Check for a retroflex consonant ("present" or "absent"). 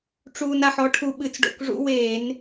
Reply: present